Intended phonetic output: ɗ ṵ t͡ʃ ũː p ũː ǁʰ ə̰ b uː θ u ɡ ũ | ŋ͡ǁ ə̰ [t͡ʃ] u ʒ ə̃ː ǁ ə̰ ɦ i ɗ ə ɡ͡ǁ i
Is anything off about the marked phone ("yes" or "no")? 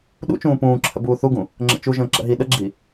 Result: no